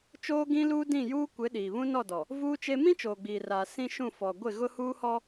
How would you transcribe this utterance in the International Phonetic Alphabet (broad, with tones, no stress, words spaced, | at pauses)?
t͡ʃoː˦ɡĩ˦luː˦ dĩ˦˨juː˦ kʷɪ˨˦ ɗiː˨βũ˦nɔ˦˨dɔ˨ | vuː˦t͡ʃe˦ mĩ˦t͡ʃoː˨ɡ͡biː˨raː˨ sĩ˦ʃũ˦˨ fɔ˨ ɡʷɪ˦˨ɣʊ˦huː˦hɔ˦